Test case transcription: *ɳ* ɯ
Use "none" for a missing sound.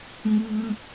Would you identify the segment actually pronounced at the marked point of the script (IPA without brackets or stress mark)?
ŋ